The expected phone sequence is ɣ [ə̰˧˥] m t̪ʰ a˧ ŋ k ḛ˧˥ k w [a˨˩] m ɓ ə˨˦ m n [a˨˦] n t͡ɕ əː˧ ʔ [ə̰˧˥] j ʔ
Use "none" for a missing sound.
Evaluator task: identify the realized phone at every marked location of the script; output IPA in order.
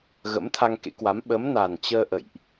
ə̰˧˥, a˨˦, a˨˩, ə̰˧˨

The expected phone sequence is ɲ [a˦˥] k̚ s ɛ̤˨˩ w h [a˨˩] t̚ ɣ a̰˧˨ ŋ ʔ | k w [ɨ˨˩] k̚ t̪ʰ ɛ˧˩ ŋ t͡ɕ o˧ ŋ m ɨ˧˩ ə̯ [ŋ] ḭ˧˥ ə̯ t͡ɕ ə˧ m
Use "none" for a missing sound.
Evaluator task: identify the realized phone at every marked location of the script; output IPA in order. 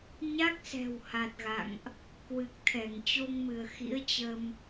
a˦˥, a˨˩, ɨ˨˩, x

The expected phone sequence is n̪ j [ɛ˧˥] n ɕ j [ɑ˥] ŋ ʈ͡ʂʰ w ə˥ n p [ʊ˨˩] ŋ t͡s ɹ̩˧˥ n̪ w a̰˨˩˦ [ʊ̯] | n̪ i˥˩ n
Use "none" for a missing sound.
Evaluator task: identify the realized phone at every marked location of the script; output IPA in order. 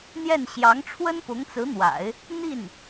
ɛ˥˩, ɑ˧˥, ʊ˧˥, ɪ̯

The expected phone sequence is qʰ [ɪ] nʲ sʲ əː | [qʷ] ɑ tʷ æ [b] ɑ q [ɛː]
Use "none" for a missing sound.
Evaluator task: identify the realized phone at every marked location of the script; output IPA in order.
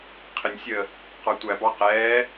ɪ, q, b, ɛː

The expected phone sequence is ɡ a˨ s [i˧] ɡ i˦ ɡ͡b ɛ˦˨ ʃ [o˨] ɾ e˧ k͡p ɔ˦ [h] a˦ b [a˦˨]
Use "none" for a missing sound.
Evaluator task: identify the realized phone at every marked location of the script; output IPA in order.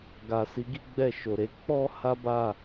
i˨˦, o˨, h, a˦˨

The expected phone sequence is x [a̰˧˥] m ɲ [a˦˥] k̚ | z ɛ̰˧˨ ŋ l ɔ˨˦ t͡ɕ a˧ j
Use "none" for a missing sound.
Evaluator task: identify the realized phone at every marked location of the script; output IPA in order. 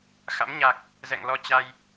a̰˧˥, a˨˩

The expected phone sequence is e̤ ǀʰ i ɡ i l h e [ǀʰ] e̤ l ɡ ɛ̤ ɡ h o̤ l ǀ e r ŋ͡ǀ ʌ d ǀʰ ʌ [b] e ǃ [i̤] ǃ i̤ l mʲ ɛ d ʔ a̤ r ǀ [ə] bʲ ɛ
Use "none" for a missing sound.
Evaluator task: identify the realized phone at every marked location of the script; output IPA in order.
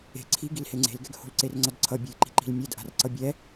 ŋ͡ǀ, bʲ, i̤, ʌ

